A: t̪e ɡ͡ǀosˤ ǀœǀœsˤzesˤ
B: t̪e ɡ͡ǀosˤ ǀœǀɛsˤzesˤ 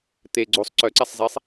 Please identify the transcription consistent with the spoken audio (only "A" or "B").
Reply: B